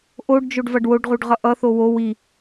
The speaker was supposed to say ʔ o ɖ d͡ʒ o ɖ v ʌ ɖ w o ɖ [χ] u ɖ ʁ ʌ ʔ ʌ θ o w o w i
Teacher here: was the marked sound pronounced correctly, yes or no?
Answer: no